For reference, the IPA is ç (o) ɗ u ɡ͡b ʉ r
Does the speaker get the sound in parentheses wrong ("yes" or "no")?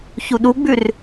yes